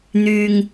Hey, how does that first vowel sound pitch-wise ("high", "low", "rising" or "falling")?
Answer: low